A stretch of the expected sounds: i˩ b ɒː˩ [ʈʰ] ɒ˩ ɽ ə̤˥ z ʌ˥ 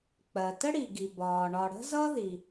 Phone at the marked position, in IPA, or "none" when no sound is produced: ɳ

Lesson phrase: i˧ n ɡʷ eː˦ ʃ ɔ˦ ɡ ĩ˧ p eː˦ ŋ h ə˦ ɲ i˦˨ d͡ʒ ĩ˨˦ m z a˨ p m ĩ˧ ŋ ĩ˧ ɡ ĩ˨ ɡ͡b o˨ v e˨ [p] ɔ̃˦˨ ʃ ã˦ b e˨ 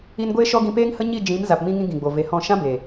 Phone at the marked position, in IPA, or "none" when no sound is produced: h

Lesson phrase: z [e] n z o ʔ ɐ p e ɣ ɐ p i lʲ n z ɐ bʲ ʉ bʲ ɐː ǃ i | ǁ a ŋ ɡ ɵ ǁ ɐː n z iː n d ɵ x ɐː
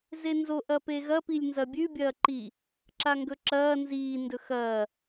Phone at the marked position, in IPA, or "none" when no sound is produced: e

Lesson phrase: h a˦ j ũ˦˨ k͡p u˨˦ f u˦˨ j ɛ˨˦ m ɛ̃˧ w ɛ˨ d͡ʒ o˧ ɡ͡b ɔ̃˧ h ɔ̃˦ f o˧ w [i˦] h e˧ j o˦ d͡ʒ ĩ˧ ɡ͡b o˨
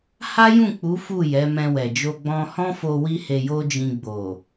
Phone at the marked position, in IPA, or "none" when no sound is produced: i˦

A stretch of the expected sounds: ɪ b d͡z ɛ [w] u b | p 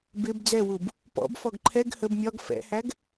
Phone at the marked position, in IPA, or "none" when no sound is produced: w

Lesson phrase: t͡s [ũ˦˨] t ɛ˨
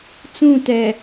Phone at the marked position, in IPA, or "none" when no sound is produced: ũ˦˨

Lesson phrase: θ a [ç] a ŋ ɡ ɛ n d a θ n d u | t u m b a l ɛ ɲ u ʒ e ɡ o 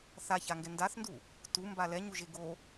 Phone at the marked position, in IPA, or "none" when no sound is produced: ç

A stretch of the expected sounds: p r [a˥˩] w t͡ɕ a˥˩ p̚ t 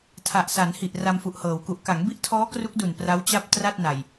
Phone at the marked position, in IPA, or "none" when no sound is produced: a˦˥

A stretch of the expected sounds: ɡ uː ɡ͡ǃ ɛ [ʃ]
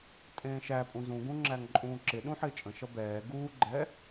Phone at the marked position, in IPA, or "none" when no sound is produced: none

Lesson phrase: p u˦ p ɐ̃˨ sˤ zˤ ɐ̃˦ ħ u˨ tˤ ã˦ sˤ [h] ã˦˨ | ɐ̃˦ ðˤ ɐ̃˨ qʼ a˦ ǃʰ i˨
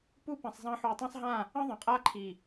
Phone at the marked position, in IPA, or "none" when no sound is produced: ɦ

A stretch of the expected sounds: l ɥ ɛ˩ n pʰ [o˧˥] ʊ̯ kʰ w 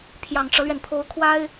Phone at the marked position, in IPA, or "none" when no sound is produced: o˧˥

